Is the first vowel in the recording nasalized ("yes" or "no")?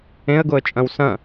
yes